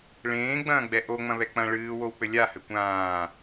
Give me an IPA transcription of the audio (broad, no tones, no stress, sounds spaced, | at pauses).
ɭ ẽː ɡ͡b ɐ̃ː ɡ͡b ɛ ʔ o ŋ͡m ɐ̃ β ɛ k͡p ɐ̃ ɭ ɨː w o w k͡p ɘ lʲ a h ɘ kʷ ãː